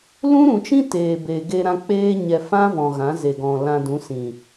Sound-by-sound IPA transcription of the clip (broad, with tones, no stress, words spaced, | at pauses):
lũ˦ɾũ˨t͡ʃĩ˦ teː˨ be˨ɡe˧ɾã˧ k͡peː˦ɲɛ˧ fã˦vɔ̃˨ɣã˨˦ ze˨ɡɔ̃˨ lã˧dũ˨˦sĩ˨